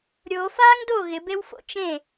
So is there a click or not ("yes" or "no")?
no